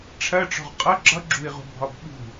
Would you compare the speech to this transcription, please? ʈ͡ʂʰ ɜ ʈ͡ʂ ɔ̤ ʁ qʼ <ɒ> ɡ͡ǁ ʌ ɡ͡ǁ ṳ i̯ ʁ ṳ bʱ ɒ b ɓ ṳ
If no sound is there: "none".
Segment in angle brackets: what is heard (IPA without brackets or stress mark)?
ʌ